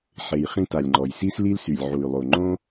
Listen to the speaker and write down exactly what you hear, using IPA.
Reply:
ħ e˨ j χ ĩ˧ t a˨ lʲ ŋ͡ǃ ɔ˨ j s i˦ s l i˦ l s y˨ lʲ ʕ u˨ y̯ lˠ o˨ ŋ͡ǃ õ˦

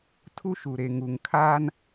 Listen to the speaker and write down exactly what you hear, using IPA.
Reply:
tʰ u˦ ʃ u˨ ɾ e˨ ŋ u˨ ŋ kʰ aː˦ n

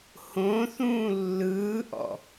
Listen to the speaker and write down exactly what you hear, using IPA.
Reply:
h õ θ ũː lː ɯː ʔ ɔ̰

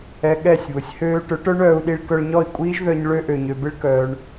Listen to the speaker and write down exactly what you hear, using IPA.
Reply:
ɛ˧ ɠ ɛ˦˨ sʲ β ʊ˨ sʲ h øː˦ ʈ ʊ˨˦ ʈ œ˦ ɳ œː˧ u̯ ɗ i˧ ɭ k œ˧ ɭ ɲ ɔ˦˨ i̯ kʷʼ iː˦ ʒ ð œ˧ ɲ ɭ ø˦ ʔ ø˨ ɲ ø˨ b ɪ˦ ɭ k œː˧ ɳ

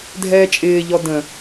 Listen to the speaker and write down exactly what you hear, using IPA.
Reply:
dʱ ɛː t͡ʃʼ ɪː ʎ ɔ d ə̃

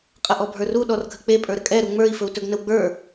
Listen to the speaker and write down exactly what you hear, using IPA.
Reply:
qʼ ə ʔ ɔ bʱ ə˞ r u ɗ ɔ r ɡʱ ə k͡p e pʼ ə˞ ɾ ə kʼ ɛ ɾ u ŋ͡m ə˞ i̯ f ɵ u̯ t ɵ ɡ n ə w ɡ͡b ə˞

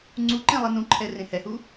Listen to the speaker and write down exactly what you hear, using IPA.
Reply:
ŋ͡ǀ u ǃ ẽ lˠ i n ũ ǃʰ ɛ r ẽ h ɛ h u

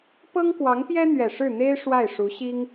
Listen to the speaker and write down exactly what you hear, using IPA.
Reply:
p ɤ˥ ŋ k w ɑ˧˥ ŋ p j ɛ˥ n̪ ɥ ɛ˨˩ ʂ ɻ̩˥˩ n̪ e˥ ɪ̯ ʂ w a˥˩ ɪ̯ ʂ u˧˥ ɕ i˥ ŋ

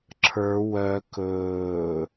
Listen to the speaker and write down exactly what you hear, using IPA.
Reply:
ǁʰ ə˞ w œ k ɵː

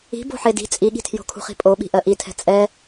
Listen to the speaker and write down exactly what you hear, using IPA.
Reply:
i̤ b o̤ ħ e d i̤ t͡sʼ i ɠ i̤ tʰ j o̤ kʰ ṳ χ i̤ pʼ o ɓ i̤ ʔ ɜ ʔ i tʰ ɛ̤ t͡sʼ ɛ

